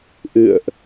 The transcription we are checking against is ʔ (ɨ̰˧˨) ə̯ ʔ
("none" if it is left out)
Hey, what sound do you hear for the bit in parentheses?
ɨ̰˧˨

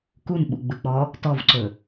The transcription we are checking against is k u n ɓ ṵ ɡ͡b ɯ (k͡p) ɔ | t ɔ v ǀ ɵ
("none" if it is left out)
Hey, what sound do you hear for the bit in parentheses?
k͡p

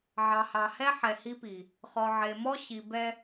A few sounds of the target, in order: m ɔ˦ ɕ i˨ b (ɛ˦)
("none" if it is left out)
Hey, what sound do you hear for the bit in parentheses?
ɛ˦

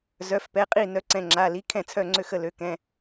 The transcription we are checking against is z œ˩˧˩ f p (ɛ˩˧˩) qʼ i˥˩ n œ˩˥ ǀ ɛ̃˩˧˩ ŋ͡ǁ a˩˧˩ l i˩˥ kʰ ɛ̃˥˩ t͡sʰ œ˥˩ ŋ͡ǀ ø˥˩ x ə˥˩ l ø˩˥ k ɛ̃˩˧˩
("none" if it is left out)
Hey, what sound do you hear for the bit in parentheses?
ɛ˩˧˩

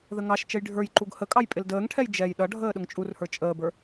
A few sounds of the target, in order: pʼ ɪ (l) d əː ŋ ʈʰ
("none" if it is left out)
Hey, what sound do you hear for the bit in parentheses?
l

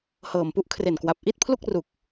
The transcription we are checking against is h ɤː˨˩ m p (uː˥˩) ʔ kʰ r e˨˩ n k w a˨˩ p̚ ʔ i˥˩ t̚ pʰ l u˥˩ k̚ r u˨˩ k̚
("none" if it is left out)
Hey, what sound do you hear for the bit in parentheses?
u˥˩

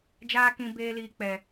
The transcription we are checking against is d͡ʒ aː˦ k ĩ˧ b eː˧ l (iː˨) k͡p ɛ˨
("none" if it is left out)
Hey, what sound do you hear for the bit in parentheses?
iː˨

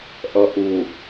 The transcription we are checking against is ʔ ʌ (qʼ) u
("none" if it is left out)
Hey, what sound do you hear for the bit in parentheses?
ʔ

